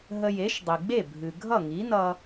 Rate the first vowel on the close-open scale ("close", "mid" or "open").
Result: mid